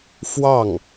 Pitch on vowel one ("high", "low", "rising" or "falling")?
falling